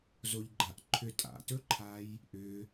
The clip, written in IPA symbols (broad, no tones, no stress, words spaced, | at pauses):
zoʎɡ͡ǃaʔǃʰʏ tʼa̰tɵǃʰaj | ʔʏ